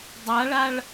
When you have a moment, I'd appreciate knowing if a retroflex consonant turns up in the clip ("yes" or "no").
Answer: yes